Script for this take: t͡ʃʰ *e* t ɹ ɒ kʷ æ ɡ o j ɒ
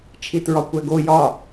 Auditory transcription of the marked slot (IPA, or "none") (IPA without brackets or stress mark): i